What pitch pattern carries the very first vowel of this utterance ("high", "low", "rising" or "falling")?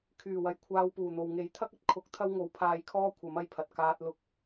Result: low